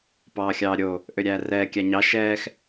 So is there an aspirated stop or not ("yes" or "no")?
no